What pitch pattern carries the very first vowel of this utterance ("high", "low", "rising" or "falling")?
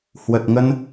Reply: low